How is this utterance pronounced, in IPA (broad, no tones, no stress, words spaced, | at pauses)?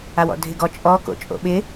awɔ̰dʱɪɡɔ t͡ʃʼɔ ko̰t͡ʃʼo̰ɓɪ